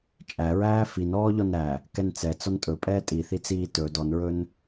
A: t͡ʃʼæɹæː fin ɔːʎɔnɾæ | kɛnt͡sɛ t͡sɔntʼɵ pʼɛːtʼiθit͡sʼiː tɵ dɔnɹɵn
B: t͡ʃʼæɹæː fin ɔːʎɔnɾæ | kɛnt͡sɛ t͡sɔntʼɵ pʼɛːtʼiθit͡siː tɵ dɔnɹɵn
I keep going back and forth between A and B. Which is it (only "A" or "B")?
B